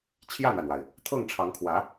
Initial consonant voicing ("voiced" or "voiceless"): voiceless